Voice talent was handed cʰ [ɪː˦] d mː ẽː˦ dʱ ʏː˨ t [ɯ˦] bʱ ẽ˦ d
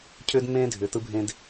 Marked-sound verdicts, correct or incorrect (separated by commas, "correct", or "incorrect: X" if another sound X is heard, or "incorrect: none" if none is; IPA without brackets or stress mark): incorrect: ʏː˦, correct